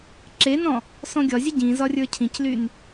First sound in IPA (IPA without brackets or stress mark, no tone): ǁ